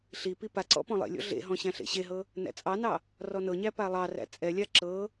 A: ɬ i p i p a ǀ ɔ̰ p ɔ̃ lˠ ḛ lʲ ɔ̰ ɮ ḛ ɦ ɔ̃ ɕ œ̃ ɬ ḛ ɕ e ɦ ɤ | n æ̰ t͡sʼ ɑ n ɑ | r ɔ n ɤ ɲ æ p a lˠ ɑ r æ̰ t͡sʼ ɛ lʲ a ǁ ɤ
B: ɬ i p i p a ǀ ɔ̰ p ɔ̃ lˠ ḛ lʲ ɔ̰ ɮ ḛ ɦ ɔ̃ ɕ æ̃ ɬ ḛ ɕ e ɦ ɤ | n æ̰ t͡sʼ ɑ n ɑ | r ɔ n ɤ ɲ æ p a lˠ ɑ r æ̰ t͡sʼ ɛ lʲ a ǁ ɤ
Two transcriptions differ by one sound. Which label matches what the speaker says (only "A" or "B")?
B